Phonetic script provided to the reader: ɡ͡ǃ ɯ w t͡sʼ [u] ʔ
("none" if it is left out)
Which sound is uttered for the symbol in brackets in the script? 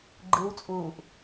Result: uː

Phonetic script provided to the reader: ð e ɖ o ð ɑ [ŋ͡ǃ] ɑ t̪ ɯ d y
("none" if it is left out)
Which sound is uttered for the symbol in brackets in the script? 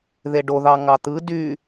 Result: ŋ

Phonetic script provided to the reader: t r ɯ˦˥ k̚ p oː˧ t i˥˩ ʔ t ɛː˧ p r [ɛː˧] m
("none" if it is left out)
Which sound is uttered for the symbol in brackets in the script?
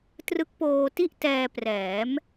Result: ɛː˩˦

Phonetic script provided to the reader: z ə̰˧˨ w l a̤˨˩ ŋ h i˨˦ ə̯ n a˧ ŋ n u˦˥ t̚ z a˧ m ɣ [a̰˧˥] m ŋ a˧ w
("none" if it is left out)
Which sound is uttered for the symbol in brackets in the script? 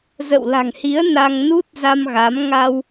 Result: a˨˦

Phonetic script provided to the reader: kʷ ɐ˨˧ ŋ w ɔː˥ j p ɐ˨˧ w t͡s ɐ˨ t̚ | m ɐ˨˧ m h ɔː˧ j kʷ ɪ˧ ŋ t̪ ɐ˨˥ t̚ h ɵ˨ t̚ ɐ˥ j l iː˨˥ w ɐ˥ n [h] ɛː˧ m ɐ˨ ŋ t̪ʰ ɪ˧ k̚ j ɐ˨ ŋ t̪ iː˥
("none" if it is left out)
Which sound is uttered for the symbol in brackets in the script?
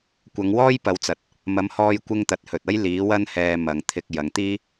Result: h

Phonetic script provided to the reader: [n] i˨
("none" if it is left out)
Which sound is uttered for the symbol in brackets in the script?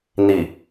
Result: n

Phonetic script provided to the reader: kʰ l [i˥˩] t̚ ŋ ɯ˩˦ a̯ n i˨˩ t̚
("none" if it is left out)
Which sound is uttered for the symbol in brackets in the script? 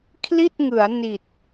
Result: i˥˩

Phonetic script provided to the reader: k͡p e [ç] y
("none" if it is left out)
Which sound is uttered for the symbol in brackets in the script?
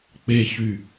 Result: ç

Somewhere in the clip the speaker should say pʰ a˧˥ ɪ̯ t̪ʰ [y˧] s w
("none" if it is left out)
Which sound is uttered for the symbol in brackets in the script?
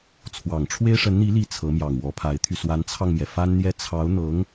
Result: y˧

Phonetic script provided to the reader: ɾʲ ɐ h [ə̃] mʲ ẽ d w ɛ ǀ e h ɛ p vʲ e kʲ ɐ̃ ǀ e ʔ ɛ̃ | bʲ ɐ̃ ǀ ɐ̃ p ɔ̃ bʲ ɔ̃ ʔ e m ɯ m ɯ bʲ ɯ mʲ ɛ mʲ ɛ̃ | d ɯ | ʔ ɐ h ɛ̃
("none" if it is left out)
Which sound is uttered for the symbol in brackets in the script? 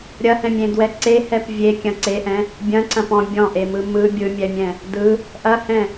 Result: ɛ̃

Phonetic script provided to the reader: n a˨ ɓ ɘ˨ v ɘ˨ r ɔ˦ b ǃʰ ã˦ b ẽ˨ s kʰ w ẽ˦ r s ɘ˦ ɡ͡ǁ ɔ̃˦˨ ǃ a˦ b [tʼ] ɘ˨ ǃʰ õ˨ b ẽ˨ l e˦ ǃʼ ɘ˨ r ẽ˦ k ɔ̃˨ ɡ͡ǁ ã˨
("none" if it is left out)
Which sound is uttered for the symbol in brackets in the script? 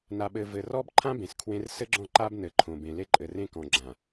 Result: n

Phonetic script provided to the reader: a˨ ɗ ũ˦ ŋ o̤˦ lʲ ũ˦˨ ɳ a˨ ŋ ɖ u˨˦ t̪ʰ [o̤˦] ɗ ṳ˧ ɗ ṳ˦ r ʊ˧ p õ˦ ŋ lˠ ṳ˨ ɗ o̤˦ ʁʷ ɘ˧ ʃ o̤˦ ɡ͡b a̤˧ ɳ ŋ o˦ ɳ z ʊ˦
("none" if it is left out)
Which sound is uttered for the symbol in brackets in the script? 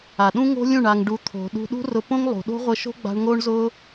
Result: o̤˨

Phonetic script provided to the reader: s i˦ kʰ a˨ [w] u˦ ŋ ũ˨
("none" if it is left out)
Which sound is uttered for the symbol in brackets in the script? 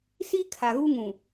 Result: ɣ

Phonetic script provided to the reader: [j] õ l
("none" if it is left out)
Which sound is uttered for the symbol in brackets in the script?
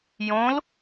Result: j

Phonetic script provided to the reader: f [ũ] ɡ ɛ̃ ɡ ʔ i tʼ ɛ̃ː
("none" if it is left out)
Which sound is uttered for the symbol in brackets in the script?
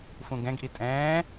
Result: ũ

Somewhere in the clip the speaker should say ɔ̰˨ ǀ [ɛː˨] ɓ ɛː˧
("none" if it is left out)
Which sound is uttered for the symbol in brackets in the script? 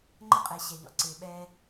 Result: ɪː˨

